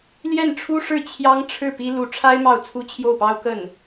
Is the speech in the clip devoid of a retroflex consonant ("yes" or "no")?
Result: no